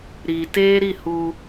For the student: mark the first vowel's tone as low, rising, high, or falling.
low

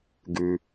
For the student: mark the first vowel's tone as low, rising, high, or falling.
low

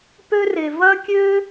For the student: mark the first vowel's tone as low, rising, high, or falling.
high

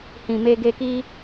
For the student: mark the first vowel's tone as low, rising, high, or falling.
low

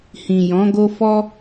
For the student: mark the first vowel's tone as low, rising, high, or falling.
low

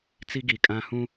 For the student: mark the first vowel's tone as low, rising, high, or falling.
high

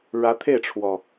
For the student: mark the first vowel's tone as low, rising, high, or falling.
rising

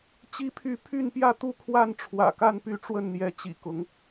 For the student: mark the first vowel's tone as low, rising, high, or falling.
high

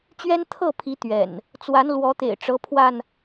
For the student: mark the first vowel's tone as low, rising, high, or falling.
high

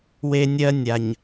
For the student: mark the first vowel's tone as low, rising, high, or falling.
high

